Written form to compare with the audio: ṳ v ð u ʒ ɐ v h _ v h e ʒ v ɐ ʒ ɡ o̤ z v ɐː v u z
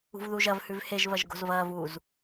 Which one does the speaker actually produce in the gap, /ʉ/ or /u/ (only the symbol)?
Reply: ʉ